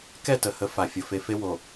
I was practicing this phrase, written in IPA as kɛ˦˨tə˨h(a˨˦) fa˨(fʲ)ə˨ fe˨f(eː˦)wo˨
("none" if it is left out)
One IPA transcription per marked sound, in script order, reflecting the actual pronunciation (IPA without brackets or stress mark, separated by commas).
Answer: ə˨˦, fʲ, e˦